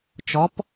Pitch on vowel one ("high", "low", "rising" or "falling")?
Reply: rising